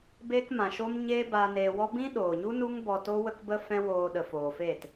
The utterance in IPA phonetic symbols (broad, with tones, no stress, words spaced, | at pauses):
beː˧kmã˨ ʃo˧mɲeː˧ baː˧neː˧wɔ˦ bĩ˦ɗoː˨ɲu˦ nu˦ŋ bɔ˧to˦ wə˦kbə˦ fɛ̃˦woː˧ ɗə˨foː˨feː˦˨t